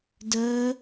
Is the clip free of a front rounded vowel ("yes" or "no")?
no